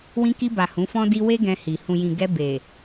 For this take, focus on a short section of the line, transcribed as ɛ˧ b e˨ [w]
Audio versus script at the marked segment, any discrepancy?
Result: yes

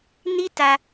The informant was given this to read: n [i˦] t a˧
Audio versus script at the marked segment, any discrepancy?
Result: no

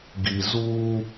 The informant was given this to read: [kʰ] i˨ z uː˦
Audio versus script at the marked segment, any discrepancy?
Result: yes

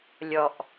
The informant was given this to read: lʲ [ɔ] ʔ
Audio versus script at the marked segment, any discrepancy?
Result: no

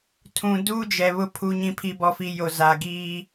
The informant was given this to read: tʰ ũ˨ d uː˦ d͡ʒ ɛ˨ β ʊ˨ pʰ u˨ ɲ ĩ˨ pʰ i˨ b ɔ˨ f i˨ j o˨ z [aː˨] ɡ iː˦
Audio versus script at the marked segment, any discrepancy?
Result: no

